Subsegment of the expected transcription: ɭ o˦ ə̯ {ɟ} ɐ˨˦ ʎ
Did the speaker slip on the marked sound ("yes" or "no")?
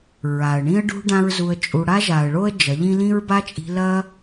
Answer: yes